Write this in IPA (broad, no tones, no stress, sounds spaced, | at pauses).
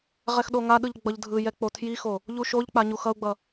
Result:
ʁ ɛ x ɗ o ŋ a ɗ ɯ ʎ ɡ͡b ʌ ʎ dʱ ɯ j ɛ k͡p o tʰ j i x o | ʎ u ʃ o ʎ k͡p a ɲ u x ʌ u̯ ɡ͡b ʌ